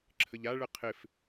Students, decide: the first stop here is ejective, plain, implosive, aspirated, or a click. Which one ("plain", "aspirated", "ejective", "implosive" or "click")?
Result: click